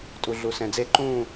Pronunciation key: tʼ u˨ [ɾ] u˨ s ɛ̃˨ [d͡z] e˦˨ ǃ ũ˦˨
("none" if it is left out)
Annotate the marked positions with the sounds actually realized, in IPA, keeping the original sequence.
ɮ, d͡z

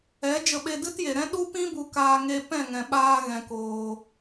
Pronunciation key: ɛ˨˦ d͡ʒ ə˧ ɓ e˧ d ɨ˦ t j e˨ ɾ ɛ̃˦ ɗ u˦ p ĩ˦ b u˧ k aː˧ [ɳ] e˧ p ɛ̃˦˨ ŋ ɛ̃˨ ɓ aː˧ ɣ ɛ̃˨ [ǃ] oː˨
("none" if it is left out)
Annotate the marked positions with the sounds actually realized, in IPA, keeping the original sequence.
ŋ, k

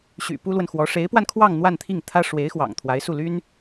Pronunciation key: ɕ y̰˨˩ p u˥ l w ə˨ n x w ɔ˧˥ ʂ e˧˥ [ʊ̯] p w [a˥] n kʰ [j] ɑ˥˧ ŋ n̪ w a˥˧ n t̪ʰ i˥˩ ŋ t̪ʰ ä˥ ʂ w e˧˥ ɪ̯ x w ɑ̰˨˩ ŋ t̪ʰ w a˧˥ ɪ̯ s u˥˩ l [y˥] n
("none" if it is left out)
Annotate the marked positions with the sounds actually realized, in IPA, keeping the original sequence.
ɪ̯, a˧, w, y˥

